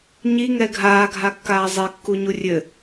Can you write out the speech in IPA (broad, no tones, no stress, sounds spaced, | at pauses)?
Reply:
ɲ i ŋ ɛ ɡʱ aː ɡʱ a kː aː zˤ e kː u ɲ u rʲ ɘ